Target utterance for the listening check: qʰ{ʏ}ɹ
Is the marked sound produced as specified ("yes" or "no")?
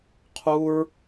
no